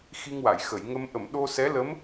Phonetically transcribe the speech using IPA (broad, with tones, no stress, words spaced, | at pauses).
xi˧ŋwa˨˩˨jxə˨˩˨jŋə˧m ʔə˨˩˨m ɗo˧sɛ˧˥lə˧˥m